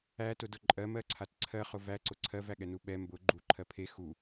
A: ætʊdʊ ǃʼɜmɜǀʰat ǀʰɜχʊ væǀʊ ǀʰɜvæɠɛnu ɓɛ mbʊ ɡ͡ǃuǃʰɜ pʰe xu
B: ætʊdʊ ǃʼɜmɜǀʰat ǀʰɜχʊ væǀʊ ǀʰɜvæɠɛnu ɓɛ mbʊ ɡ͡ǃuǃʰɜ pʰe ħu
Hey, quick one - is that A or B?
A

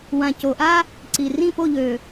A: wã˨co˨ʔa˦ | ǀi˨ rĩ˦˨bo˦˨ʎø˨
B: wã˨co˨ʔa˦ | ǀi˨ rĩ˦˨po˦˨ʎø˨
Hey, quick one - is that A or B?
B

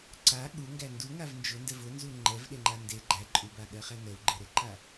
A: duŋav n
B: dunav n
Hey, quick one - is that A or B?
A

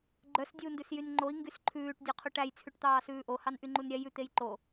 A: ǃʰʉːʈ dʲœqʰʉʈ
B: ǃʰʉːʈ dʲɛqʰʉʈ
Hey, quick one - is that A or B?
A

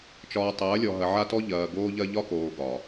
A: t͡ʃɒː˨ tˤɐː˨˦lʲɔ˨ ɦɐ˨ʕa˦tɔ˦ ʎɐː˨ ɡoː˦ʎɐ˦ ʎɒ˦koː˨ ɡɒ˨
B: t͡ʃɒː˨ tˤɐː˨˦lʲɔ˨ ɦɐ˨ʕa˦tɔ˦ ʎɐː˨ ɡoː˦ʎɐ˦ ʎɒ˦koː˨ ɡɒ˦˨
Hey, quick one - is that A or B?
A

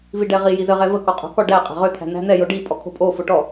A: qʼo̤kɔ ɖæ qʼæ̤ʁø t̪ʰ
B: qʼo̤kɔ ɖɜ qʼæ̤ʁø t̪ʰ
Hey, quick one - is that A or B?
A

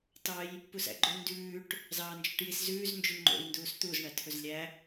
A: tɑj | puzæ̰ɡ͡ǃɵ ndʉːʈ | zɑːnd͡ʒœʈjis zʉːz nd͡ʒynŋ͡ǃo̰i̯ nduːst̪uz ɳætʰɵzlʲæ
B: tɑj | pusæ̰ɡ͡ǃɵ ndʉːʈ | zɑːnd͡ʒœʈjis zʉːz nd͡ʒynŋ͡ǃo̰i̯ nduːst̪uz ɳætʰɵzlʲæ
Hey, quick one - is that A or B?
B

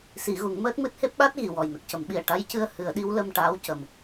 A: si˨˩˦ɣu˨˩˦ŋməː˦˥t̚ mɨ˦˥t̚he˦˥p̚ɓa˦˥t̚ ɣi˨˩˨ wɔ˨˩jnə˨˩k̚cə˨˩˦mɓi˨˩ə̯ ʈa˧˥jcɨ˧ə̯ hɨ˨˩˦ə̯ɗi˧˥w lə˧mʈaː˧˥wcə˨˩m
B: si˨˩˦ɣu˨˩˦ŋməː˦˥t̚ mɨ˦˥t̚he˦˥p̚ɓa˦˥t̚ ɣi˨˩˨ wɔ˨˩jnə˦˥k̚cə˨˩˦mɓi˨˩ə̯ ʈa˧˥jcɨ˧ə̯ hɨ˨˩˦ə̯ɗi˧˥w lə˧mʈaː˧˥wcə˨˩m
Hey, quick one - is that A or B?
A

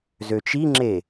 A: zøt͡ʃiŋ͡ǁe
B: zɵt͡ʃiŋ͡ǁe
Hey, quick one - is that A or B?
A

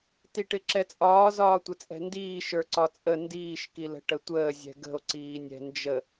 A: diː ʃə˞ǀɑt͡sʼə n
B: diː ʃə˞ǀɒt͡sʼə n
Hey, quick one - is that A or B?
B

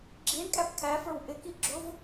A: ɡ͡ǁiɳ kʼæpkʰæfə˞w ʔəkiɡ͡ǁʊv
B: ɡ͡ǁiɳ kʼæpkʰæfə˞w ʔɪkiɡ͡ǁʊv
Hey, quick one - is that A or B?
B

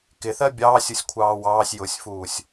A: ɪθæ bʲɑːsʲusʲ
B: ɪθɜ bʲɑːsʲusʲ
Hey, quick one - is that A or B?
B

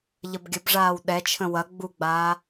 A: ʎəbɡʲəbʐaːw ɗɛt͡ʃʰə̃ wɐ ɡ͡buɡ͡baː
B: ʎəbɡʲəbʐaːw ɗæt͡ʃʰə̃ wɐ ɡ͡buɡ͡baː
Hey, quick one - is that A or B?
A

